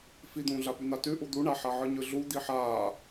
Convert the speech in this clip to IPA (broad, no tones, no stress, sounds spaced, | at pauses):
f i d̪ ũː ɮ a p ʉ n̪ a t ʉ ʔ u d̪ u ɳ a ħ a ʕ ɯ ɲ ɯ ɮ u d̪ i ħ aː